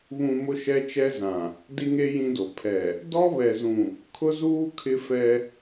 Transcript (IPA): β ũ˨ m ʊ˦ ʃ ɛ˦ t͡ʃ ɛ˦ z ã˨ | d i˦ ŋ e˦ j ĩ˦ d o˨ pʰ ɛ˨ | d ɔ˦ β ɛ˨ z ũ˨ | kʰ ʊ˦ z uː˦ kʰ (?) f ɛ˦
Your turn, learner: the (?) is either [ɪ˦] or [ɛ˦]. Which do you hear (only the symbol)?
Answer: ɪ˦